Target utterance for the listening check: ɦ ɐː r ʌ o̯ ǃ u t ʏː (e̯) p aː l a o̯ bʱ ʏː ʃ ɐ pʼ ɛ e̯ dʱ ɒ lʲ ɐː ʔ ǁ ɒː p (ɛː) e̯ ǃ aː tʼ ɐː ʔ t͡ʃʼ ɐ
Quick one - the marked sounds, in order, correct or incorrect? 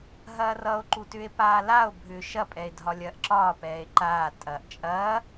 correct, correct

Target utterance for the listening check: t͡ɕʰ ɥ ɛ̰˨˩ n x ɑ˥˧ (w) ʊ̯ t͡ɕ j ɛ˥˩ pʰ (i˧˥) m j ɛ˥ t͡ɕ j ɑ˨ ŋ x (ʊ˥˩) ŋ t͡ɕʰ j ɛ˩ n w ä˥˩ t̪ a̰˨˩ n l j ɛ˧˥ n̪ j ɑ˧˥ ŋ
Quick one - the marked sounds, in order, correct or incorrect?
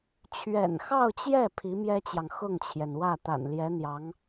incorrect, correct, correct

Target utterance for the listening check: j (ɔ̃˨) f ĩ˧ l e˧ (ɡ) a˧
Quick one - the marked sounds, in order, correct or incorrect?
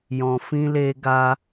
correct, correct

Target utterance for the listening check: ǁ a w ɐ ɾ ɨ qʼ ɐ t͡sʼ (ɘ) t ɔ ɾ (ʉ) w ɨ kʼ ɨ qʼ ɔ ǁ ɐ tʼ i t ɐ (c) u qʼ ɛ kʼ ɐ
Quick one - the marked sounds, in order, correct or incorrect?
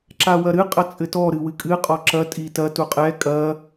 correct, incorrect, incorrect

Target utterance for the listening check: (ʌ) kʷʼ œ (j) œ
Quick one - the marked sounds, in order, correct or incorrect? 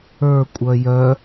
incorrect, correct

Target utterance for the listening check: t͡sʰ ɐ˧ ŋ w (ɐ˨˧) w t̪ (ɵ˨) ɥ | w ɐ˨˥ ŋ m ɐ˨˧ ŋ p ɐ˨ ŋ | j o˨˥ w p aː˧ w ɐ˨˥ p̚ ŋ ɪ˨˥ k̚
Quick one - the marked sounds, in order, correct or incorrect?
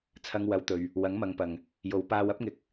correct, correct

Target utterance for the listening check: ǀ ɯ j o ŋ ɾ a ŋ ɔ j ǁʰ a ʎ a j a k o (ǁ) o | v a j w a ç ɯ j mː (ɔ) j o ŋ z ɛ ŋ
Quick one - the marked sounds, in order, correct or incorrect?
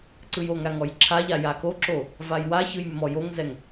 correct, correct

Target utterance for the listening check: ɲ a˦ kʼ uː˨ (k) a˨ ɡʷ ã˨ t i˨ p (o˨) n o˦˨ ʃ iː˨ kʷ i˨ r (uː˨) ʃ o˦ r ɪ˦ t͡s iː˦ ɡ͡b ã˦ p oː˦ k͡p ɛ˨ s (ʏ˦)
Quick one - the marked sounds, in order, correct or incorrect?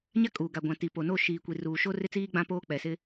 incorrect, correct, correct, incorrect

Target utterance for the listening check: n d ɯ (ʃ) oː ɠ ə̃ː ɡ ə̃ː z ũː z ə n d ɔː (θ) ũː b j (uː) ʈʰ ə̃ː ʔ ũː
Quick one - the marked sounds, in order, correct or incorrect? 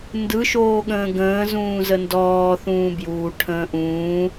correct, correct, correct

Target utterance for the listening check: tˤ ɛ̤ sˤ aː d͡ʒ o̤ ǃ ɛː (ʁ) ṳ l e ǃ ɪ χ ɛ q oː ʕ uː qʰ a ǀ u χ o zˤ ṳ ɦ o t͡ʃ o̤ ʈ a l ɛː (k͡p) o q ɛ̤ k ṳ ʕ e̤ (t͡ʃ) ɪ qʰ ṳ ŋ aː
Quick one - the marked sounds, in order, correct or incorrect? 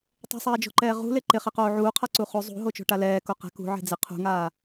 correct, incorrect, incorrect

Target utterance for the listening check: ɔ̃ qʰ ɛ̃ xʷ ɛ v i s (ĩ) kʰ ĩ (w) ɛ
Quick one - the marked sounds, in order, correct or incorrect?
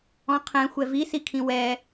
incorrect, correct

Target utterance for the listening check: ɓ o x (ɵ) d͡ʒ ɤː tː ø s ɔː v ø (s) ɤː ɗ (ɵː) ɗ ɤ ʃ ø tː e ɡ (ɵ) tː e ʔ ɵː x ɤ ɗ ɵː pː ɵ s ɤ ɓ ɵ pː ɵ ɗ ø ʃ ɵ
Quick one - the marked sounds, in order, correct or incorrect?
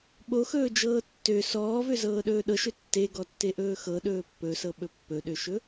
incorrect, incorrect, correct, incorrect

